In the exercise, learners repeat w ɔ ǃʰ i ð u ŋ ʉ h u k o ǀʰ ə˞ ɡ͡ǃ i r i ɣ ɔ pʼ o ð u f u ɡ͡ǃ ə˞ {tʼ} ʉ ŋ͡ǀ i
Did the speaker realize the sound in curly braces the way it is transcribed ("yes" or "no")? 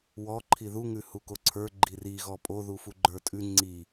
yes